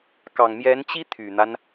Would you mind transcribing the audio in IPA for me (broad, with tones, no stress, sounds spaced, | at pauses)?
k ɑ˨˩ ŋ m j ɛ˧˥ n t͡ɕ i˥ t̪ʰ y˨˩ n̪ a˦ n